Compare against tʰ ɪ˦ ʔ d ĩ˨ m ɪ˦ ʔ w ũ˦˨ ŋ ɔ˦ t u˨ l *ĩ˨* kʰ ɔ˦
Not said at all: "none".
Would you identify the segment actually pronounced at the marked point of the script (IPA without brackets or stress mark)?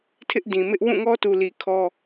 i˨